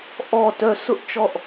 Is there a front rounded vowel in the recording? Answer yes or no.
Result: yes